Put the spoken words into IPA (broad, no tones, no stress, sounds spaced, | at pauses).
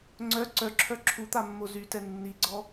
ŋ͡ǀ œ ǀ œ ǁʰ œ ǁʰ u t̪ a mː o z y t ɛ nː i ɡ͡ǀ ɔ